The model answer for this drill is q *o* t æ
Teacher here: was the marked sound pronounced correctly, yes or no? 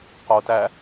yes